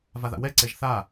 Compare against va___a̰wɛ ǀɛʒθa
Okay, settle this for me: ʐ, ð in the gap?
ð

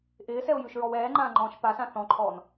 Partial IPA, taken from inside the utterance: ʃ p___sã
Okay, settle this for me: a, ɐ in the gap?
a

